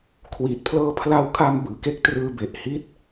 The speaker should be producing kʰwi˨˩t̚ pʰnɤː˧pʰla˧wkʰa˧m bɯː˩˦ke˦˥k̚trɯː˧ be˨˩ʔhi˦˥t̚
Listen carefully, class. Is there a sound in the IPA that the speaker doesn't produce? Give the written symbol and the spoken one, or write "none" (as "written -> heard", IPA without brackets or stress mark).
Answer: n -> l